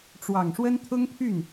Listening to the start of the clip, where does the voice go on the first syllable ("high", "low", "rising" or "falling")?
low